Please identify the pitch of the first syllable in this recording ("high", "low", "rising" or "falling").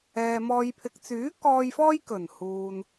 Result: low